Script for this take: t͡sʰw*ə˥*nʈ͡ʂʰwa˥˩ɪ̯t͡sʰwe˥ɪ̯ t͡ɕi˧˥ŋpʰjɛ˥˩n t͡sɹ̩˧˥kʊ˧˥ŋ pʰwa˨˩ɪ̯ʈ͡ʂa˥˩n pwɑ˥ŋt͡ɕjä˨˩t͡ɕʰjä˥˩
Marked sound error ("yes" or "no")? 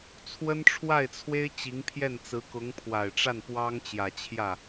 no